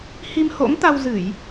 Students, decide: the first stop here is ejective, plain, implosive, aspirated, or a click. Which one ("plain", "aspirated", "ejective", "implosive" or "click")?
plain